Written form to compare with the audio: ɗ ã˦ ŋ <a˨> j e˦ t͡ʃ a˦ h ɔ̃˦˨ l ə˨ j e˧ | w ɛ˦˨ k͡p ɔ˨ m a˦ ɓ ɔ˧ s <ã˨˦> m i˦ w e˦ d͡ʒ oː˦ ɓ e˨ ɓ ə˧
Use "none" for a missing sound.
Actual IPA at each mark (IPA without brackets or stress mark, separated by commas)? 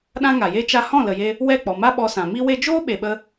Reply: a˨, ã˨